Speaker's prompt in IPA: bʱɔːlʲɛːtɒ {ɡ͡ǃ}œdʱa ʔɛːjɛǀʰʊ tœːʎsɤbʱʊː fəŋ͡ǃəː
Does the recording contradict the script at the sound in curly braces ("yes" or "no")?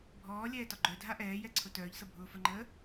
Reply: no